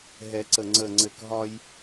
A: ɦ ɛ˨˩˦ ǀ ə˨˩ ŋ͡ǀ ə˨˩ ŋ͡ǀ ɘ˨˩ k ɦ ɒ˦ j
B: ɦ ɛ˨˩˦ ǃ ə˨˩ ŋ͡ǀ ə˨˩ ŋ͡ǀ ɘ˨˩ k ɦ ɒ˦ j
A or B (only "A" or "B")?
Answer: A